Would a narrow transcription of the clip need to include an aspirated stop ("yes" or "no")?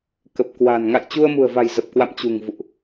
no